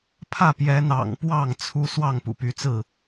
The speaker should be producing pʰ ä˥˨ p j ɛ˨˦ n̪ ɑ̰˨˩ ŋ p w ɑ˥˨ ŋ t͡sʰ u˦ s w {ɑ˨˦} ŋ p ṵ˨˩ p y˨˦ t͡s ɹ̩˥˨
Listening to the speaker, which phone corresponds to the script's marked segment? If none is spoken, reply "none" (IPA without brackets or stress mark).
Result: ɑ˥˨